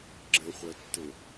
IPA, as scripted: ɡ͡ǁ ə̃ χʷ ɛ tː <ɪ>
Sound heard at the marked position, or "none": ɪ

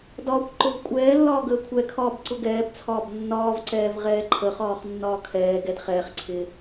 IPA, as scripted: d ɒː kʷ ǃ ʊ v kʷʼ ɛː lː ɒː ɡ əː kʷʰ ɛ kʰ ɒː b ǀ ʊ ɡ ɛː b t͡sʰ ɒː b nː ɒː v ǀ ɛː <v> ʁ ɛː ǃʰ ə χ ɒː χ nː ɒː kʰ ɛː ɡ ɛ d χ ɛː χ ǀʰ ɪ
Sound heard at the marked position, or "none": v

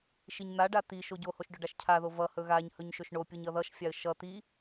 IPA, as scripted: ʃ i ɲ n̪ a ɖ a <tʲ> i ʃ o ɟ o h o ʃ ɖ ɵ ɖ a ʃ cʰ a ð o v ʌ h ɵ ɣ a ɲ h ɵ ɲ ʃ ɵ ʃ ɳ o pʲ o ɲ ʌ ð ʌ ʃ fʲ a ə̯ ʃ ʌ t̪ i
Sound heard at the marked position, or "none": t̪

